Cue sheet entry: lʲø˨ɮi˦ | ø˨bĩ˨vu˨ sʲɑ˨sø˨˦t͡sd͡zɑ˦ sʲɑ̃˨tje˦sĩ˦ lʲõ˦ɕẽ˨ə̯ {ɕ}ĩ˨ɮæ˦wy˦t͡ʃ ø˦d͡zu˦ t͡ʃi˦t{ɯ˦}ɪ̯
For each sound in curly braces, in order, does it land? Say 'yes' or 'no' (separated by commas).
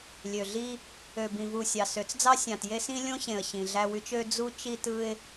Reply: yes, yes